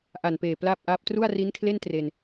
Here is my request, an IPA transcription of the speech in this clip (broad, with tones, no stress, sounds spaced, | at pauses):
ʔ a˨˩ n p eː˨˩ p l aː˥˩ p̚ ʔ aː˦˥ p̚ t r u˥˩ a̯ r i˦˥ n kʰ l e˥˩ n t r e˧ n